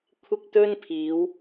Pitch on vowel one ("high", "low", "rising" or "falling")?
high